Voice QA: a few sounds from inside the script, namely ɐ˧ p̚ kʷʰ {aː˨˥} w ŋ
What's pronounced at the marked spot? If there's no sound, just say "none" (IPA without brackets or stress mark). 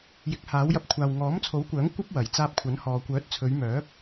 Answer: aː˨